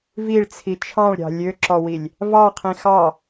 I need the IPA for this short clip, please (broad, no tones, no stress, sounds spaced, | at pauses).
v i ɭ t͡sʰ i t͡ʃʰ ɑ̃ ɭ ɾʲ ɑ̤ lʲ ø ǁ ɔ w i lʲ | v ɑ qʰ ĩ x ɑ